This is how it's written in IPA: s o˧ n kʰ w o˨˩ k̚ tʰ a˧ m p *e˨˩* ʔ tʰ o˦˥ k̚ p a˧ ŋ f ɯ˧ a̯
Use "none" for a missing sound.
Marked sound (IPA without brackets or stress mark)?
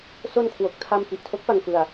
i˨˩